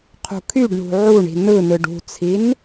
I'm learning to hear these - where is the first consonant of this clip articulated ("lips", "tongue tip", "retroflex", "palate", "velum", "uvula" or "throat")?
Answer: uvula